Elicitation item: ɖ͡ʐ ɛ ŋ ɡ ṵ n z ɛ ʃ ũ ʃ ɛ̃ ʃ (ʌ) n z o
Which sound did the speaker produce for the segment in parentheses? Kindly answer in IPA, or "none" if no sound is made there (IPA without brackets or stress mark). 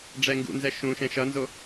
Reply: ʌ